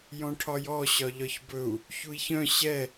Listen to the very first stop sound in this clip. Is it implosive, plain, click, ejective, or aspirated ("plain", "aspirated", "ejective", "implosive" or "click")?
aspirated